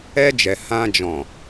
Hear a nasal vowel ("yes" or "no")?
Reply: yes